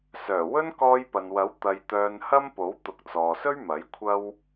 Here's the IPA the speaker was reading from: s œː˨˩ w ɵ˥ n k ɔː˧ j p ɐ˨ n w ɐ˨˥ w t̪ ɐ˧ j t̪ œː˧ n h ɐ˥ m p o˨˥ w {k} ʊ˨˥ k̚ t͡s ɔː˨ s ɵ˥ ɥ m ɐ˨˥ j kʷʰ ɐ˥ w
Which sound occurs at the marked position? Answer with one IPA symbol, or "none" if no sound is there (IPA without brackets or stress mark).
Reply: t̪